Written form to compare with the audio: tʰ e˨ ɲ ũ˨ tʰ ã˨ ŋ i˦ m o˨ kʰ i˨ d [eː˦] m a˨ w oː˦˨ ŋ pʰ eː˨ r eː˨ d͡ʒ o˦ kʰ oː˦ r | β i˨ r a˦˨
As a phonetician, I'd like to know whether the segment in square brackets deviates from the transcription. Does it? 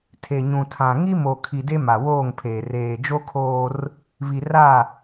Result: yes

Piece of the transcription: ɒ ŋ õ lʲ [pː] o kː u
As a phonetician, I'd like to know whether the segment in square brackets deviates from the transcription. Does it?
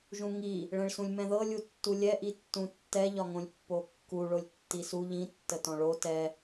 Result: no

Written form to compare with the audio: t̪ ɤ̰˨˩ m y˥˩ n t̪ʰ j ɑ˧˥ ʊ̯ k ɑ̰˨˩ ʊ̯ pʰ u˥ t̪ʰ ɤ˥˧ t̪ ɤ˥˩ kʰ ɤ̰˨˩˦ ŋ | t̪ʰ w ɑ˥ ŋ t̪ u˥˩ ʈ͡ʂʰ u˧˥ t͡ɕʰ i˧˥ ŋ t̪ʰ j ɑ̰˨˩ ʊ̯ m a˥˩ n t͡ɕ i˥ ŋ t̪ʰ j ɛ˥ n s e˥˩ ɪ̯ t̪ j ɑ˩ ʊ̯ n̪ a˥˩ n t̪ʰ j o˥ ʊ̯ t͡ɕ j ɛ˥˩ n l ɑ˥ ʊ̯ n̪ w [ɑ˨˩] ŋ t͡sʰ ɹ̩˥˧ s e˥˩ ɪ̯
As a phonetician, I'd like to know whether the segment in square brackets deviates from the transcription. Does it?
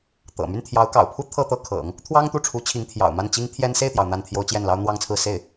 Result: yes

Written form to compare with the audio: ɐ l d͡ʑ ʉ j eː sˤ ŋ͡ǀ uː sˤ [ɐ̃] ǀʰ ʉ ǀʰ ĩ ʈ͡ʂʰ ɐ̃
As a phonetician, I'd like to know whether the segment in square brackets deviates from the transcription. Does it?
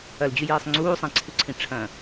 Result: yes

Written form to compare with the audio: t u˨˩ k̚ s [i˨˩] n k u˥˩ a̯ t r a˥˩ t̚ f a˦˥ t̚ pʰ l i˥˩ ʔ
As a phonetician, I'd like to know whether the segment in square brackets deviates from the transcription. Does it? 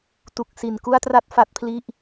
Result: no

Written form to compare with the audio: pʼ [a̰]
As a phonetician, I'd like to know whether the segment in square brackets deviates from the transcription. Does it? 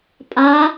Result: yes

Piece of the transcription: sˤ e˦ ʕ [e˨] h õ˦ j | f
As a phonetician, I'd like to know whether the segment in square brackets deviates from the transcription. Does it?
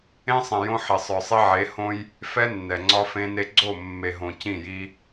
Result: yes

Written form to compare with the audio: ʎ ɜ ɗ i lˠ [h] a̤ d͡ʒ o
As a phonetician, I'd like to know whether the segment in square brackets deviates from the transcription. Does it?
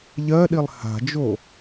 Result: no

